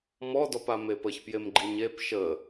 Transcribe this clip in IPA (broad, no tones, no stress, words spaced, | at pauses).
mɔdɔpa mepəç pjemɡ͡ǃiɲep ʃə